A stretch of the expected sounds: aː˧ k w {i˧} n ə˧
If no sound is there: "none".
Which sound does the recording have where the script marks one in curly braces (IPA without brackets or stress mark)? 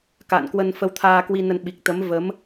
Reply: i˧